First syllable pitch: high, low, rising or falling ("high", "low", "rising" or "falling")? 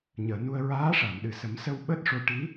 low